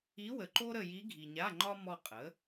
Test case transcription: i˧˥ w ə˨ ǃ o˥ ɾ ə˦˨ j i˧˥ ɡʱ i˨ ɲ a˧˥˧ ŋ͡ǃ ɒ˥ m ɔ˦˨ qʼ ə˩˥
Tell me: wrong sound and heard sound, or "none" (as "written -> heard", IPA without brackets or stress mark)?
none